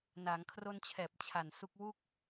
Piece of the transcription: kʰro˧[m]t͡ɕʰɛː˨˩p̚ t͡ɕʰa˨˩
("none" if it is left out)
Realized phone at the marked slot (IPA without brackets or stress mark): n